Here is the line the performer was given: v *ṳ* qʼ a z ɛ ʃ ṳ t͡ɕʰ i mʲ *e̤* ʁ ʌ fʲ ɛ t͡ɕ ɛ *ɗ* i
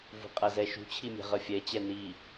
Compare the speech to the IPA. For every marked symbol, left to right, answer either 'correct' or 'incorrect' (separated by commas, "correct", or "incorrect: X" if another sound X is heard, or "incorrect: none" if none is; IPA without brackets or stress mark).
correct, incorrect: ɛ̤, incorrect: n